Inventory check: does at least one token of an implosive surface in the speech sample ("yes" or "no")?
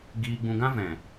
no